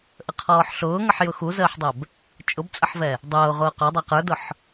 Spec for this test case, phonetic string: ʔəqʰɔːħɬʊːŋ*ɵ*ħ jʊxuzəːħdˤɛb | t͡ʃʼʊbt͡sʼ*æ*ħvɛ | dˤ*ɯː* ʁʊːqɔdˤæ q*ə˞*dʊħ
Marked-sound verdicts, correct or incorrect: incorrect: ə, incorrect: ə, incorrect: ʊː, correct

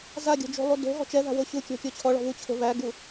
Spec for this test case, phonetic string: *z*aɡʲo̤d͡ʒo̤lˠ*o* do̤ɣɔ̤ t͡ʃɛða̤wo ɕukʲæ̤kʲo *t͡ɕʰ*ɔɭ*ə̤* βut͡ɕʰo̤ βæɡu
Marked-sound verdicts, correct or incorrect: correct, incorrect: u, correct, incorrect: ɔ̤

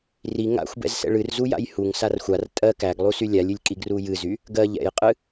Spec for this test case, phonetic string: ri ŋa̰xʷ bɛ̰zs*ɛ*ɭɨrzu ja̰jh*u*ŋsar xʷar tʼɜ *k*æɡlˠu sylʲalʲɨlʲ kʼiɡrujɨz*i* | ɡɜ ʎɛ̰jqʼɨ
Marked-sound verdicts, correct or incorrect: incorrect: ɛ̰, correct, correct, incorrect: y

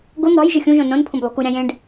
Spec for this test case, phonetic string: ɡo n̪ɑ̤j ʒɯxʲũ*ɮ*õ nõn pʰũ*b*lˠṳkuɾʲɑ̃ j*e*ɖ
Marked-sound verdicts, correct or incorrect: incorrect: ʒ, correct, incorrect: ẽ

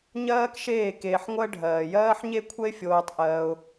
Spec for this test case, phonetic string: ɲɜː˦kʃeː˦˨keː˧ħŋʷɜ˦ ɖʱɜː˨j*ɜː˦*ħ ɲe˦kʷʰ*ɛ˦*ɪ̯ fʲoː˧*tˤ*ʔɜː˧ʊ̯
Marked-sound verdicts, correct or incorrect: correct, correct, correct

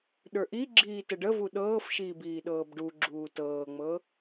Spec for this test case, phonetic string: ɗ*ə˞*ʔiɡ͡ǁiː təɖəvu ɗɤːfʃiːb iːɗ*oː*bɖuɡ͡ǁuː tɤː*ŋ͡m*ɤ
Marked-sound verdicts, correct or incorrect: correct, incorrect: ɤː, correct

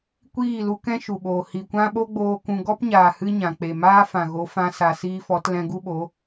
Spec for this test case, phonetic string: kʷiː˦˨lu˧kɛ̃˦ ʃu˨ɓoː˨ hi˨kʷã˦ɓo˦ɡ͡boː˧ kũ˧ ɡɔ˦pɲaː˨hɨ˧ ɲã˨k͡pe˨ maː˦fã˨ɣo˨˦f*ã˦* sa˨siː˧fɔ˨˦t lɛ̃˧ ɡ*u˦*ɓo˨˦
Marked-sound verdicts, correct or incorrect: incorrect: ã˧, correct

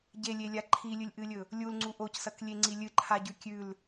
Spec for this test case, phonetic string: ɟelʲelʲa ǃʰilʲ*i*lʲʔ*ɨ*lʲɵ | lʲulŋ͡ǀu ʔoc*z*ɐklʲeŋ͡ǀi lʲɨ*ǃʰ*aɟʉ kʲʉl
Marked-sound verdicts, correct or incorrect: incorrect: ɨ, correct, incorrect: s, correct

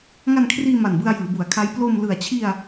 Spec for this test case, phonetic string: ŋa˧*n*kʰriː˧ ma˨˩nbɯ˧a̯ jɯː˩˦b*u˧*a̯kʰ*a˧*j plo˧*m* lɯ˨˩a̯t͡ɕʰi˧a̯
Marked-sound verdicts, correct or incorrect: correct, incorrect: u˩˦, incorrect: a˦˥, correct

